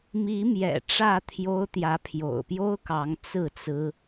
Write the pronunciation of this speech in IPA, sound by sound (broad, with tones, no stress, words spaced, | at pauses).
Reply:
mi˨˦mjɛ̰˨˩ ʈ͡ʂä˥˨t̪ʰjo˦ʊ̯ t̪jä˨˦pʰjo̰˨˩ʊ̯pjo˦ʊ̯kɑ˨˦ŋ t͡sɹ̩˥˨t͡sɹ̩˦